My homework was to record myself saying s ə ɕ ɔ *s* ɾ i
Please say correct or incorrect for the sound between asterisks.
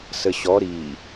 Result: incorrect: none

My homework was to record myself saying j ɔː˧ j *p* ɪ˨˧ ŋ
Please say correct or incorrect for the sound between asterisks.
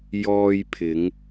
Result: incorrect: pʰ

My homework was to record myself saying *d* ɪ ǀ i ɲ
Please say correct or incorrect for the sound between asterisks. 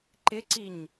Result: incorrect: ǃ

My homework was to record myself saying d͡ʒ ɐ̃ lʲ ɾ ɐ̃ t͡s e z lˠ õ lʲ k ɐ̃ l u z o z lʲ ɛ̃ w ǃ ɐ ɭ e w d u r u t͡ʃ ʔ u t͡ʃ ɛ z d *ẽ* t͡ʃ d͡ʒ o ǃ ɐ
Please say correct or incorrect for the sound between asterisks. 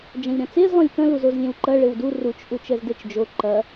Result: incorrect: e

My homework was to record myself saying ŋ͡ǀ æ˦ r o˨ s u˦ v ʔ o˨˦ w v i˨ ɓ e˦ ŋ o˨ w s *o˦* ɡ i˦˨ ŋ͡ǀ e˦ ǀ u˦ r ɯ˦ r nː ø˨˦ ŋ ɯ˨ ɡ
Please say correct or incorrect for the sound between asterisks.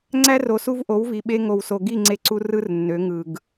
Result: incorrect: o˨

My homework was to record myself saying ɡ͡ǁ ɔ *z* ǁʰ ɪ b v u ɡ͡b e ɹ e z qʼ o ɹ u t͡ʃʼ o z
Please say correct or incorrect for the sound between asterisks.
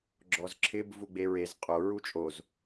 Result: correct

